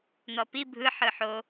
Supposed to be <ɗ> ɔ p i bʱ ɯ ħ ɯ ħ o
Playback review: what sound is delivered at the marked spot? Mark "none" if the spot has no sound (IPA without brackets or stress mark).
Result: n̪